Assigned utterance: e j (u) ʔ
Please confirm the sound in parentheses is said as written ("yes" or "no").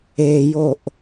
no